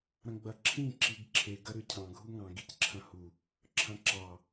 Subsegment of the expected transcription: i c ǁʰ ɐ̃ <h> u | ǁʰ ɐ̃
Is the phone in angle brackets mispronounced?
no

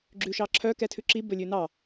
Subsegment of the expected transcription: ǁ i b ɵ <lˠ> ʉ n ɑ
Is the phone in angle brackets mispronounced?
yes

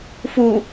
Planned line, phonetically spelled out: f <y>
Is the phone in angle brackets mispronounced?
yes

